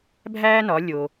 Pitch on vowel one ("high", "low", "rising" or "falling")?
high